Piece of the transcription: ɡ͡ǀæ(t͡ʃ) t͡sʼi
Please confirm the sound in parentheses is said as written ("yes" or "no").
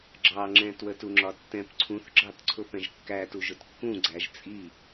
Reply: no